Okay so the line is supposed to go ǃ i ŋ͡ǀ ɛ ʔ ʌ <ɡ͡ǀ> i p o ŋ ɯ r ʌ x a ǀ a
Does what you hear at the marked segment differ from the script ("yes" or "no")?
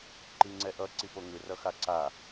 yes